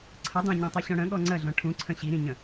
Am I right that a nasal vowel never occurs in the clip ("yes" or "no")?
no